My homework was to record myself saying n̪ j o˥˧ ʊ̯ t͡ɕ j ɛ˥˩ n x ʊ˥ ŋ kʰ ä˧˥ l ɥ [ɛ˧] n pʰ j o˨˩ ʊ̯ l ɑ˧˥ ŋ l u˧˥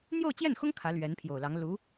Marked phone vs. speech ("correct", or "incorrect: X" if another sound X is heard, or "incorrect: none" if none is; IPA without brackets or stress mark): incorrect: ɛ˧˥